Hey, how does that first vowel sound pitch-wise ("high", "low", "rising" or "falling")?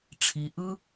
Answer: low